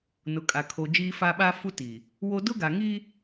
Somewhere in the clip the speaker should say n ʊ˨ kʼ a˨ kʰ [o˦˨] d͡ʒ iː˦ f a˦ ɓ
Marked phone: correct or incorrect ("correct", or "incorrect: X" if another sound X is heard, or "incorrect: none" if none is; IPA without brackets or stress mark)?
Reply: incorrect: o˨